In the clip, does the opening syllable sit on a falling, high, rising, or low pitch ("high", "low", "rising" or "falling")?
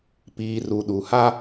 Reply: low